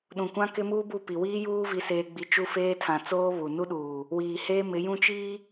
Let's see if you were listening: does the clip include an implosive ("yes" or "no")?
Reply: yes